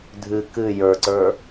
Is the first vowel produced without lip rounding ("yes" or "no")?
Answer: yes